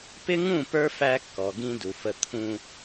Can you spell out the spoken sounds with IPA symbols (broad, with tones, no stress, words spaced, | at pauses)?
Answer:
pɪ˦ŋũ˦˨pə˞˦ fæ˦kːɔ˨ɡĩ˦ du˨fə˦ t̪ʰũ˦